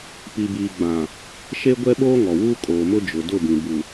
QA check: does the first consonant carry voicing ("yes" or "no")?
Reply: no